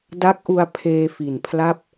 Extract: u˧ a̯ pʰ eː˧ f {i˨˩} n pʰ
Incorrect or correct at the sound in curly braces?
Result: correct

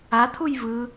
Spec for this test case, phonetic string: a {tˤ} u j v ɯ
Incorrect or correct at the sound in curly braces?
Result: incorrect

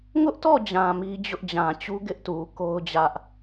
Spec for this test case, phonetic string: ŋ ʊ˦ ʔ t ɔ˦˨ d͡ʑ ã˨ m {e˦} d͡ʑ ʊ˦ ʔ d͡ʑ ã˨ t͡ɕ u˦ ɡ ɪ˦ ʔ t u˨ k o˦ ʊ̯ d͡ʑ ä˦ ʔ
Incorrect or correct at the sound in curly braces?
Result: incorrect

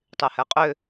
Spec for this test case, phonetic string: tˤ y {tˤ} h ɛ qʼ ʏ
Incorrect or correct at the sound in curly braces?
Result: incorrect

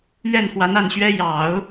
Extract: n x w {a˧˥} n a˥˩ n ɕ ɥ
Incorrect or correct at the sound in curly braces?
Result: correct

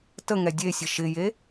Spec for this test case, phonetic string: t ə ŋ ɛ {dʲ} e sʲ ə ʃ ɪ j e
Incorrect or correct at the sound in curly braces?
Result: correct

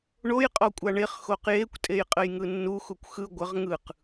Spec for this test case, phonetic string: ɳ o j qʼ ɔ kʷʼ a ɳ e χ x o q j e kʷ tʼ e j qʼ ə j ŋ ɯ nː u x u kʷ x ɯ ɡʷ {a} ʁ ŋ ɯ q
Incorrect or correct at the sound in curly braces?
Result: incorrect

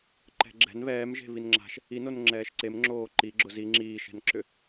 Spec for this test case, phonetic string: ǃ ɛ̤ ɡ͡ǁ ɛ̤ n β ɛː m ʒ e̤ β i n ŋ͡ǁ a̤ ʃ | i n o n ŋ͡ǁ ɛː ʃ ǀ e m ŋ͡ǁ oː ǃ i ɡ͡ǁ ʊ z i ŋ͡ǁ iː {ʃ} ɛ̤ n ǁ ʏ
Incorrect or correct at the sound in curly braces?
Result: correct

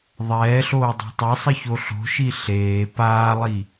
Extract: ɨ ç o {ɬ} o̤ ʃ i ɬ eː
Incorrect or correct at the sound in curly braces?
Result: correct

